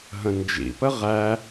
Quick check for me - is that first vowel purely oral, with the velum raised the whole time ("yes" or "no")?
no